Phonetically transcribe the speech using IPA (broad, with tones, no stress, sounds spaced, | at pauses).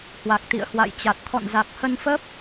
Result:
h w a˨˩ k̚ t̪ ḭ˧˨ ə̯ h w a̰˧˨ j t͡ɕ a˨˩ t̚ t̪ʰ ɔ̰˧˨ n z a˨˩ k̚ h ə˧ n f əː˦˥ p̚